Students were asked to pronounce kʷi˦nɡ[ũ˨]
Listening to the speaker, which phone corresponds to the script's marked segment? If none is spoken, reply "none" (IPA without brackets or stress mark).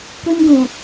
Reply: ũ˨